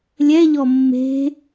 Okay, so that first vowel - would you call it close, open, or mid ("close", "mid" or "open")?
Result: mid